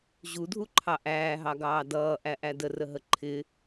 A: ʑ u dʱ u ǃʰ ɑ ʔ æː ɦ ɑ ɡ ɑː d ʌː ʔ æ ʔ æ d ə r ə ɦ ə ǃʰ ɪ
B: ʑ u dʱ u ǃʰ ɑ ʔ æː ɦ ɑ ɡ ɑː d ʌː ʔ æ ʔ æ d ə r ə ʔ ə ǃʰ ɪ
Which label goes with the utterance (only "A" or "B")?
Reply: A